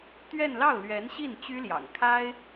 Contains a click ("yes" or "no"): no